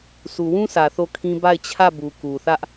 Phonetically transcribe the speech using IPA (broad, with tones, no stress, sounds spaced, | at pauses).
sʰ u˨ w ũ˦ s ä˨ θ o˦˨ kʰ ĩ˦ b a˦˨ ɪ̯ t͡ɕʰ ä˦˨ b u˨ k u˨ θ ä˦ ʔ